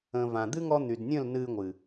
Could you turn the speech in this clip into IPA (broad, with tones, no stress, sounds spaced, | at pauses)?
ə̃˨ v ã˨ d̪ ɨ˦ ŋ ɔ˧ n̪ y˨ d nʲ ə̃˦˨ l n ɨ˧ ŋʷ ɨ˨